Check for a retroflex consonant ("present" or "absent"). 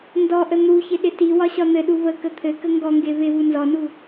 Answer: absent